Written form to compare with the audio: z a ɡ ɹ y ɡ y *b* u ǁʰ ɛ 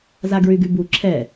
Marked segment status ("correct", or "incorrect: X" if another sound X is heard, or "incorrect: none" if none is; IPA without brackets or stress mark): correct